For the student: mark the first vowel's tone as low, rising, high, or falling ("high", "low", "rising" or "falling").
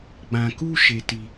low